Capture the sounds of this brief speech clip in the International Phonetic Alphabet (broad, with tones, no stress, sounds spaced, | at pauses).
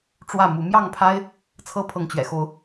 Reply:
ʈ͡ʂ w ä˥˨ m u˨˦ m j ɑ˥˨ ŋ pʰ a˦ ɪ̯ | t͡sʰ ɤ˦ pʰ ɤ˨ ŋ t͡ɕ ɥ ɛ̰˨˩ x o˨˦ ʊ̯